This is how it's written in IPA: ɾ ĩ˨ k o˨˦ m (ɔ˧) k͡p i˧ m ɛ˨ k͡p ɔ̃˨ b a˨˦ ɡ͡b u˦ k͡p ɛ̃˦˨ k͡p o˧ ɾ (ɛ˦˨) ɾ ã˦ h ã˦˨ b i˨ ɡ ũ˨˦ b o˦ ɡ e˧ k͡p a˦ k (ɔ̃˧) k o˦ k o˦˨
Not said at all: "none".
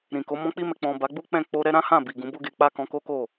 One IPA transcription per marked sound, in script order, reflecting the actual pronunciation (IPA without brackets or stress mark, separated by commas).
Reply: ɔ̃˧, ɛ˦, ɔ̃˧